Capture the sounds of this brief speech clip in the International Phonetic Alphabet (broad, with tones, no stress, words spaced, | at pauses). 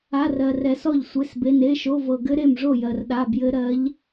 a˧˥˧rɜ˧rɛ˧sɔ˥˨ʎ sʷe˧˥˧sbe˧˥˧n e˧˥˧ʃo˧˥˧vɤ˧ ɡɘ˦˥ɾe˥˨mʐo˥˨ jɜ˧rɗa˧˥˧ bjɘ˦˥ɾɜ˦˥ʎ